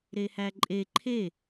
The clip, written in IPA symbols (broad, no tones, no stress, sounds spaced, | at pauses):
ɾ e h æ ǃʼ e ǃʰ e